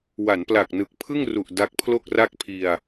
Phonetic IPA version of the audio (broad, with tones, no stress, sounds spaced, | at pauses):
w a˩˦ n p l a˨˩ k̚ n ɯ˨˩ k̚ pʰ ɯ˥˩ ŋ r u˨˩ ʔ d a˦˥ k̚ pʰ l o˥˩ k̚ r a˥˩ k̚ pʰ i˧ a̯